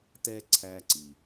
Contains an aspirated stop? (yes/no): yes